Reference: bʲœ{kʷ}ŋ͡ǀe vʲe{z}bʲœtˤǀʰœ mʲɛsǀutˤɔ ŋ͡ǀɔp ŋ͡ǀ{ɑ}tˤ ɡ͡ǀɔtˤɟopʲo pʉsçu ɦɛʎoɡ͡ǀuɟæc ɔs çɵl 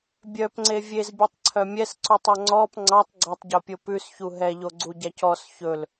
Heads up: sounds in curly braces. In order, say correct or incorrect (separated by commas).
incorrect, correct, correct